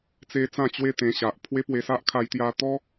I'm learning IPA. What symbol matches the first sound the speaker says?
t͡s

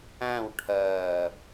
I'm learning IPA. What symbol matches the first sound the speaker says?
æ̃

